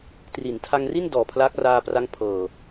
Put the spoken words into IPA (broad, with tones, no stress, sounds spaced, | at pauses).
t r i˩˦ n tʰ a˧ ŋ r i˥˩ n d ɔː˨˩ pʰ l aː˦˥ k̚ r aː˧ p r a˦˥ ŋ pʰ ɤː˨˩